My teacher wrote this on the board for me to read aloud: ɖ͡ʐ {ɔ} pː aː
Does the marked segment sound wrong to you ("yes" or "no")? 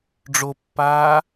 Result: yes